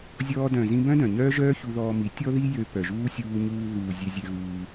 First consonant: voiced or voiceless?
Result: voiced